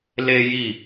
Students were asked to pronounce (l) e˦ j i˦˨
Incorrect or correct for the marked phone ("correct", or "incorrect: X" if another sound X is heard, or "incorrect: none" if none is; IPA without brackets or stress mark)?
correct